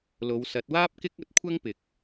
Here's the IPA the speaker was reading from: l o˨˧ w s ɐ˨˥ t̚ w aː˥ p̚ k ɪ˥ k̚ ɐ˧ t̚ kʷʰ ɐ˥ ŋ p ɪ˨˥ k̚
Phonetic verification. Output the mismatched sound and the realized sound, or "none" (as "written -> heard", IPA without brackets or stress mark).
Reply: none